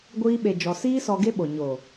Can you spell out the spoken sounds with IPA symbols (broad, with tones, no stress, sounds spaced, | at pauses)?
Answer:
ɡʷ iː˧ ɓ e˨ d͡ʒ ɔ˨ s iː˦ s ɔ˧ ɡ e˦ ɓ o˨ ɲ o˨